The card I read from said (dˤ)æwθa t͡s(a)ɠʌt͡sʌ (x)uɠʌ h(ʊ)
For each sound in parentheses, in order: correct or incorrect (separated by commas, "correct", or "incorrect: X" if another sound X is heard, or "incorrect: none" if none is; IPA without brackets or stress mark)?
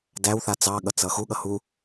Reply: incorrect: d, incorrect: ɑ, correct, incorrect: u